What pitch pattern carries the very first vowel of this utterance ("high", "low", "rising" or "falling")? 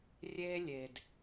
high